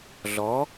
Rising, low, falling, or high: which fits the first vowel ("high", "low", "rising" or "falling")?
rising